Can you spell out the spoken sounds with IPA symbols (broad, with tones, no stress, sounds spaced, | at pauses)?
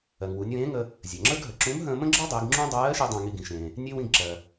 ɜ˩ ŋ w u˩˧ nʲ w ẽː˧˥ ŋ ə˧ | zʲ ɜ˩ ŋ͡ǁ ə˞˥ ɡ ɦ ə˩ ǁ ũ˧˥ m ɦ ə̃ː˧ m ə̃˥ ɡ͡ǁ ə˞˥ dˤ i˩˧ ɡ ŋ͡ǁ ũ˥ dˤ ɜː˧˥ ʃ i˧ dˤ ə̃ː˧ ŋ i˧ ɡ ĩ˩˧ ʃ ẽː˩ | nʲ e˥ w ĩ˧ ɡ ǁ ɜ˩